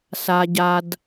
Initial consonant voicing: voiceless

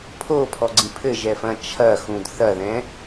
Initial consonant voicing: voiceless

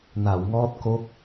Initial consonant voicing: voiced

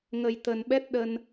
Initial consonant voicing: voiced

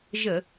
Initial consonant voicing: voiced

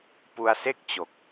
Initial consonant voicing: voiceless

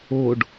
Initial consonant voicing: voiced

